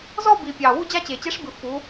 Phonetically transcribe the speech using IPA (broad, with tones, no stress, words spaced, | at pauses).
zɔ˥˧bi˨˩ pʲɑ˨˩ wu˥˧d͡ʑa˥˧t͡ɕe˨˩ t͡ɕe˧˥ʂbɨ˨˩ fu˩˧